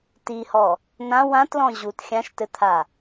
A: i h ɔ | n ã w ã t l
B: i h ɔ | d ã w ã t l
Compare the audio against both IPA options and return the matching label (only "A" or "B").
A